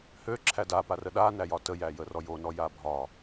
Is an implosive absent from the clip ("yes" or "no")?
no